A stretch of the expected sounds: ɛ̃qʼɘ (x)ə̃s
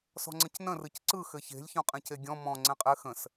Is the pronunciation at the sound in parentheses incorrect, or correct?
correct